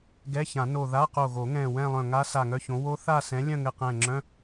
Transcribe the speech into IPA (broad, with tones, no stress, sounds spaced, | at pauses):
ɡ ɛ˧˥˧ ç ã˨˩˦ n o˧˩ ð a˧˥˧ q o˧˩ ɣ o˨˩˦ ŋ ɛ̃˧˩ w ɛ̃˥˧ lˠ œ̃˧˩ ŋ a˦˥ s a˧˩ ŋ œ˥˧ ç õ˨˥ w o˦˥ θ a˥˧ s ɛ̃˨˥ lʲ œ̃˥˧ ŋ ɘ˧˩ q ɛ̃˧˩ ŋ͡ǁ œ̃˧˥˧